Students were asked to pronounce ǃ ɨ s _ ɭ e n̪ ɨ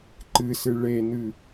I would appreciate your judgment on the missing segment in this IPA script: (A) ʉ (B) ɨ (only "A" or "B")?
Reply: B